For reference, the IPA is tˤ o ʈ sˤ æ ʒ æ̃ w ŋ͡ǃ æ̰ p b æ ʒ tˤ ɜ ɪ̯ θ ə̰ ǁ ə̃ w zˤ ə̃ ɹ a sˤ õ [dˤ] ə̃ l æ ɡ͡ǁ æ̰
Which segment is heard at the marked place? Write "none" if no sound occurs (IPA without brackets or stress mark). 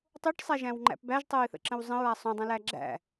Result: dˤ